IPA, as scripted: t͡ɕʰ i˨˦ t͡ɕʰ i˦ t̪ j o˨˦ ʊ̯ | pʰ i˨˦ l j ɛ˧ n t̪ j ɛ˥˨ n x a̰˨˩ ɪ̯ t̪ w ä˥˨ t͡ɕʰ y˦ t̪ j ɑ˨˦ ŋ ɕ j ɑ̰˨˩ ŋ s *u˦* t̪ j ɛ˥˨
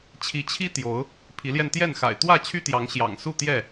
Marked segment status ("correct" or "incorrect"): incorrect